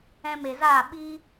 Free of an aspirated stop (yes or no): yes